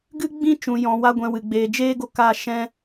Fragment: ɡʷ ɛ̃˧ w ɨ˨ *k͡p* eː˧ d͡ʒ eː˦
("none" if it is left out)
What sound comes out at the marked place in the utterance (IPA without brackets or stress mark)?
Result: ɡ͡b